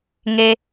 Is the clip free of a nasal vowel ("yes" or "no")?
yes